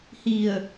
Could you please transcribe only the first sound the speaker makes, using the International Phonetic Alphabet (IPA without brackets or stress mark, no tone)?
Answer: h